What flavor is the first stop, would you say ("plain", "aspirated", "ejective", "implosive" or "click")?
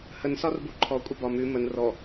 plain